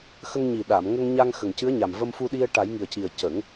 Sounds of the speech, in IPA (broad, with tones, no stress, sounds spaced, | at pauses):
x ə˧ ŋ ɲ i˨˩ ɗ a˨˩˨ m ŋ ə˧ ŋ ɲ a˧ ŋ x ə˨˩ ŋ c ɨ˧˥ ə̯ ɲ a˨˩ m v ə˧ m f u˧ ɗ i˧ ə̯ ʈ a˨˩˦ j ŋ i˨˩ ə̯ c i˨˩ ə̯ c ə˨˩˦ ŋ